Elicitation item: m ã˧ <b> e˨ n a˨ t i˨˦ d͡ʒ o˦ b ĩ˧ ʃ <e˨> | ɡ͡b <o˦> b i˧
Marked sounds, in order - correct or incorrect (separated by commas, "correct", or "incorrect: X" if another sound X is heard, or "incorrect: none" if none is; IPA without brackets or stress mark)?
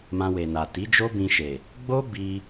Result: incorrect: w, correct, correct